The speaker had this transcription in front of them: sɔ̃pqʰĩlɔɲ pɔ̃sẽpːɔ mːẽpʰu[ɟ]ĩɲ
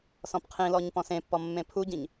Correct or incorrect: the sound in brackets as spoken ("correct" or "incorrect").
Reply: correct